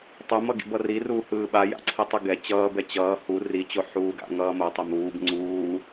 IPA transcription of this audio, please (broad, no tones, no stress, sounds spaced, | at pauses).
tˤ u m ʌ ɡ ḭ b ʌ r i r uː h ɯː ɓ a j a̰ ǀʰ i tˤ ɯ ɡ ɛ t͡ɕ ʌː b ɛ t͡ɕ ʌː h u r i t͡ɕ o ħ uː ɡ a̰ ŋ ʌː m o tˤ ɛ m uː b ŋ͡ǀ uː